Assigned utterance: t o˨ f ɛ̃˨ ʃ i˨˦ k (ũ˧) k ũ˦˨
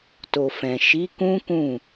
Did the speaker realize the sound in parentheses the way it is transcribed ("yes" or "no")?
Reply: no